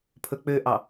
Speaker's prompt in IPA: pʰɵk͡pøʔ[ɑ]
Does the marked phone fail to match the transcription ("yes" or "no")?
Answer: no